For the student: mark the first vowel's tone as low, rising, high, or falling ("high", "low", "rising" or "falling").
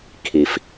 low